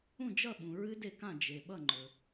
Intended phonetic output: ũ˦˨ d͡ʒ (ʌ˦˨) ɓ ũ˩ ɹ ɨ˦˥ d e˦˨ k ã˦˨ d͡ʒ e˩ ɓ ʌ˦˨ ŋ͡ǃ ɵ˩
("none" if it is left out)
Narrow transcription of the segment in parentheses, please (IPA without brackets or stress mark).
ʌ˦˨